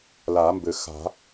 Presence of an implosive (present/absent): absent